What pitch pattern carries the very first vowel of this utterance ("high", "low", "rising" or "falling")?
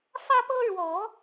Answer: high